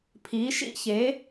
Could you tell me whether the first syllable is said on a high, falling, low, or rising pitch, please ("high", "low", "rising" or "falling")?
rising